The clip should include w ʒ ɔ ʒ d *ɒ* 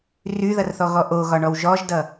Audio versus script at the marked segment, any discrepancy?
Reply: yes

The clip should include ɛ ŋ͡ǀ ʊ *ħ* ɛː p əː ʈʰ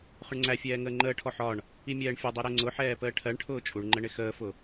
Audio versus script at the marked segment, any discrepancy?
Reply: no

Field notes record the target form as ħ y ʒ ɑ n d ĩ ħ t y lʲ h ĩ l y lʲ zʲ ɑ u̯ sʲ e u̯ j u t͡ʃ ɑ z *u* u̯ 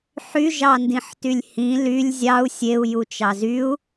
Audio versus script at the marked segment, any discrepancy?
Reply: yes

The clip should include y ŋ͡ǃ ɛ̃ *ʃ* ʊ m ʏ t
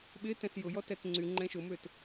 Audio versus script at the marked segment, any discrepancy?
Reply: no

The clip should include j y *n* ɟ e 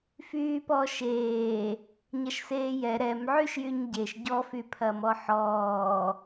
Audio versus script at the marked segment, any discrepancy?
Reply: yes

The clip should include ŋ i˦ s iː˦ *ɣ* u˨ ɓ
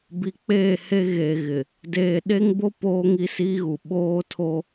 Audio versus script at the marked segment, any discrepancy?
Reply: no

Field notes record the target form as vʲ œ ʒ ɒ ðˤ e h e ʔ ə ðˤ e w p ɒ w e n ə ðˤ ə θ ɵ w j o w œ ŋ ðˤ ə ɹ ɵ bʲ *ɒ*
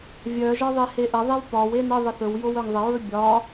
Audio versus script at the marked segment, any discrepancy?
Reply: no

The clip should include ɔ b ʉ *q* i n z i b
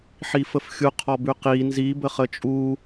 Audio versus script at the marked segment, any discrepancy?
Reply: no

